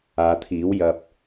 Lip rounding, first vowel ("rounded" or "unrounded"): unrounded